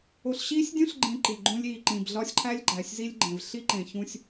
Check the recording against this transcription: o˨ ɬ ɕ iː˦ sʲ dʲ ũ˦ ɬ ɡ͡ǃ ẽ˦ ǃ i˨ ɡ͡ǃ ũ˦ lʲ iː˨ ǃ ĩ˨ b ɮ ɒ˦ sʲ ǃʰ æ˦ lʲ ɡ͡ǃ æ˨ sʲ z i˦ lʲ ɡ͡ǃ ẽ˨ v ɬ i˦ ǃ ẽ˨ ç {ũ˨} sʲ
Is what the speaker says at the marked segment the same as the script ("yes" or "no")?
no